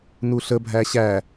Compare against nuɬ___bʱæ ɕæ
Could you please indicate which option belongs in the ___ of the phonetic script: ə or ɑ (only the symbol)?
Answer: ə